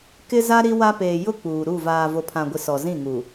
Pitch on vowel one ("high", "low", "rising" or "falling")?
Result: high